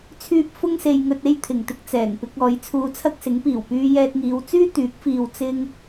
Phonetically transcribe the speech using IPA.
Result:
t͡sʰ yː˥ p̚ f ʊ˥ ŋ s e˧ j ŋ ɵ˧ t̚ e˥ j t̪ʰ ɪ˨˩ ŋ t̪ ɪ˧ k̚ t͡s ɛː˨˩ ŋ p ɪ˧ k̚ ɔː˨˧ j t͡sʰ uː˧ t͡sʰ ɐ˥ k̚ s ɪ˨˥ ŋ p iː˨˩ w p yː˧ j ɛː˧ t̚ ŋ iː˨˧ w t͡s yː˥ t̪ yː˨˥ k̚ f iː˧ w t͡s ɪ˥ ŋ

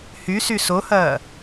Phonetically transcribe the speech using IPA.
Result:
h y s y s o h ɐː

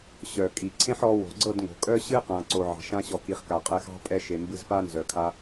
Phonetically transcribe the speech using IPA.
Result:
ɕ œ˨ kʼ i˨ ǀʰ ẽ˦ ħ ɔ˧ w o̤˨ ɡ͡ǀ ɤ˦˨ d ŋ o̤˨ kʼ œ˦ ɕ ɨ˦ q ã˨ ǀ o˨ ʕ ɑ̤˨ ʃ ã˧ ɕ ɔ˨ k i˨ χ k a˨ qʼ ɛ˧ x ɑ̤˦ pʼ ɛ˧ ʃ e˨ m b ɨ˧ z p a˦ n z œ˨ kʰ a˧

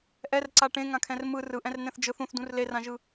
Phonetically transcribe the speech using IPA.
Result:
ʔ ɛ r ǀ a ʈ ẽ ŋ ã kʰ ɛ̃ r m ɯ r ɯ ʔ ɛ̃ r n ɛ̃ θ d͡ʒ ɯ θ ũ θ d ũ r l e r ã ʒ ɯ

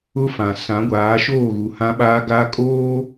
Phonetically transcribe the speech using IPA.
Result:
ʊ˦ f ã˨ s ã˨˦ ɡʷ aː˨˦ ʃ oː˦˨ ɣ u˨ h ã˦ ɓ aː˦ ɡ a˦ kʼ oː˦

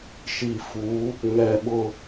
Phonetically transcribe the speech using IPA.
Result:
ʃ i˨ f u˨˦ | ŋ ɛ˨ ɓ ʊ˨

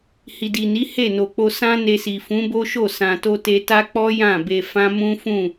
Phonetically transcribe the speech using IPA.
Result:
h i˨ d i˨ n i˨˦ h e˦˨ n o˨ k͡p o˧ s ã˦ n e˧ s i˨ f ũ˨˦ b o˦ ʃ o˦˨ s ã˨ t o˧ t e˧ t a˦ k͡p ɔ˦ j ã˦˨ b e˧ f ã˦ m ũ˦ f ũ˦˨

